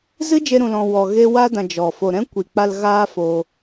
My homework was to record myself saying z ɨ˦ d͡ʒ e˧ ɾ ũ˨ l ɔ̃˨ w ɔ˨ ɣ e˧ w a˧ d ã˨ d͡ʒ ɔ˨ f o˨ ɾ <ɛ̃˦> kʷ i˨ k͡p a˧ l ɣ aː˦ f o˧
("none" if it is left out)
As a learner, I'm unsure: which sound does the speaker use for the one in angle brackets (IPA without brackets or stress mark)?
ɛ̃˦